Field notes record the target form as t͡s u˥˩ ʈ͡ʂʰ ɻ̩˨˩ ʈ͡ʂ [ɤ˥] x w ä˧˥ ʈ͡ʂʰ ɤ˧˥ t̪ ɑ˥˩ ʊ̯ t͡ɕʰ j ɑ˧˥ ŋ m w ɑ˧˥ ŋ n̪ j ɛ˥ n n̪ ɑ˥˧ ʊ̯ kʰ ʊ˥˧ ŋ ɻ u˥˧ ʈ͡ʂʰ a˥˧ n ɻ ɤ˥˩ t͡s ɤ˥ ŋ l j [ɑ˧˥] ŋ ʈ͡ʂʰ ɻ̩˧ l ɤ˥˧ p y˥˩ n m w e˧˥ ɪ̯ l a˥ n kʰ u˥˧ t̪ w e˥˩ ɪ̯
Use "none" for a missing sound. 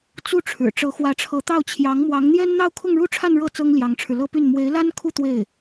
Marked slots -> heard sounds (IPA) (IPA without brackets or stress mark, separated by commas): ɤ˧˥, ɑ˧˥